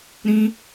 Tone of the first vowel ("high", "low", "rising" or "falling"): high